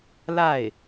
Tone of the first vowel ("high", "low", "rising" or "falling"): falling